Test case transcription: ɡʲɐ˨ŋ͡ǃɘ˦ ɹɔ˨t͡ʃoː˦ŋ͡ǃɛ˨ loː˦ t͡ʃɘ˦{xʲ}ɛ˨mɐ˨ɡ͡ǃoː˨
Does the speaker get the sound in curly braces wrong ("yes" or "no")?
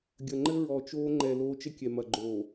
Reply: yes